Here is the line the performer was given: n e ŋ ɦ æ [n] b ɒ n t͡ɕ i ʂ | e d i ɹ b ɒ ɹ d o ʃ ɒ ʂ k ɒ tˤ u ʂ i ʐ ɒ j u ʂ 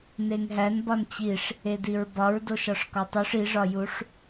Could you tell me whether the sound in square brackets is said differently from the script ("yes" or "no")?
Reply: no